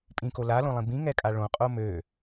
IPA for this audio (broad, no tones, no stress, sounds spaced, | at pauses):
pʼ ĩ k o l a l õ lˠ ĩ b ĩ ŋ ɛ kʼ a ɭ õ qʼ o m ø